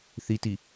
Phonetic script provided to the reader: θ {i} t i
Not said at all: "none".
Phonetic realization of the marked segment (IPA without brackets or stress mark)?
i